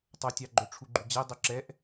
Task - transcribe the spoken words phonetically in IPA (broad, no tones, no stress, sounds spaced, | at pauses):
tˤ ɵ tʲ ɑ ɡ͡ǃ ɵ ʈ͡ʂʰ u ɡ͡ǃ y d͡ʑ ɛ dˤ ɵ ǁ ɛ ʔ